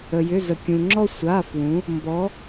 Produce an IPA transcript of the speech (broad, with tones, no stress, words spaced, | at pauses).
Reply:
ə˩jʏ˩˧˩zə˩ kʲũ˩ŋ͡ǁɔ˧ sʷa˩˧˩fwũ˩˧ | mbɔ˩˧